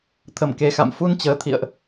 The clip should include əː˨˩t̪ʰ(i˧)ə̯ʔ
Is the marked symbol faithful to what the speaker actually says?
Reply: no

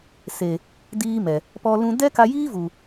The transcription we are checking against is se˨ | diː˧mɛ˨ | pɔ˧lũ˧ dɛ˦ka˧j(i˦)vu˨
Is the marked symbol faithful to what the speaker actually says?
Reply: no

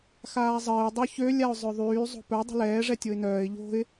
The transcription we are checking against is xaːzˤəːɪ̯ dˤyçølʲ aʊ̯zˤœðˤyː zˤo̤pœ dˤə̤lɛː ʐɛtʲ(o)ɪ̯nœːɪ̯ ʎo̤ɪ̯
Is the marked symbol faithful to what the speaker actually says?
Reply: yes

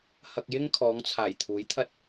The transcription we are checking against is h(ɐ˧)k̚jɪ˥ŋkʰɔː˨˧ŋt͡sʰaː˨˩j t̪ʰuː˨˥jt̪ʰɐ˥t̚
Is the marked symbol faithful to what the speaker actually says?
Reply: yes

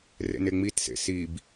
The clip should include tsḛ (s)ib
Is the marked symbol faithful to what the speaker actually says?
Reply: yes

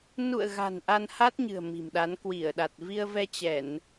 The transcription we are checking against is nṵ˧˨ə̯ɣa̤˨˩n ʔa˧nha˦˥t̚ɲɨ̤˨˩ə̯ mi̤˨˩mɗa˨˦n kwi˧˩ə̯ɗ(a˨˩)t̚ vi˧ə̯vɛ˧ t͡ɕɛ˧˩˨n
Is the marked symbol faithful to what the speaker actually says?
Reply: yes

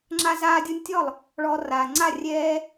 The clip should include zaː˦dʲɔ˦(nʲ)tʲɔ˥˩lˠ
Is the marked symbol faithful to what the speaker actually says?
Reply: yes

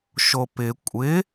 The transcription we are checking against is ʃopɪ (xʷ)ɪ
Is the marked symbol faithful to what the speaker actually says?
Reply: no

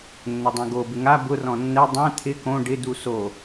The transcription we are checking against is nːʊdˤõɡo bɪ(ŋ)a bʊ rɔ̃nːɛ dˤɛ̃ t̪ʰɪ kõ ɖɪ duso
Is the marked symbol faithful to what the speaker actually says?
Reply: yes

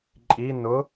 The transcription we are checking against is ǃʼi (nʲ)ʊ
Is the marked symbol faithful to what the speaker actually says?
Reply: no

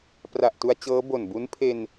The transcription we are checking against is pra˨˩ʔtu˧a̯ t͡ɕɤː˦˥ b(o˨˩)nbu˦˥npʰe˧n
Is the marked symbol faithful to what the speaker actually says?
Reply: yes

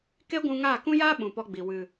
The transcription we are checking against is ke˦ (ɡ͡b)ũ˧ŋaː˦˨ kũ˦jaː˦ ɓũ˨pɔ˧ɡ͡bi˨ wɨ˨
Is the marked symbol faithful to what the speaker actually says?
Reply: no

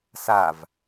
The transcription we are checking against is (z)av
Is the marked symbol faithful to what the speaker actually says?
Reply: no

